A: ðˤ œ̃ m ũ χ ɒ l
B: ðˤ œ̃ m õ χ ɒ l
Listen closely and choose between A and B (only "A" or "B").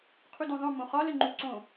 B